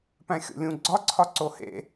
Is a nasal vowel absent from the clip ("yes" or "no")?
no